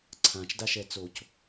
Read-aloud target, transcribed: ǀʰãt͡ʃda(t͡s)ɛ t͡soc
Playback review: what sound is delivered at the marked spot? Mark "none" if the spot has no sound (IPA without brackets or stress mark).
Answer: ʃ